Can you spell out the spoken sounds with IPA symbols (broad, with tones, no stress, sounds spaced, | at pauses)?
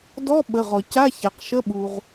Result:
d ɔ˧˥˧ ɓ ə˩˧˩ ʁ ɔ˩ c a˧˥˧ ç a˩ q ʃ ə˧˥˧ ɓ u˩ ʁ